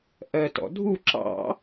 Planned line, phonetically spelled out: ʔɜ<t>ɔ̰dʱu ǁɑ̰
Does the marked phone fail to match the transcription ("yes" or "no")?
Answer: no